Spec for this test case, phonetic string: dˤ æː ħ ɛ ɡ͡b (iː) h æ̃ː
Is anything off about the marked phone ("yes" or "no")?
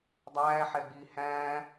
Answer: no